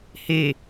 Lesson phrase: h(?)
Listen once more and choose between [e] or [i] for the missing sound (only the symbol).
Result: e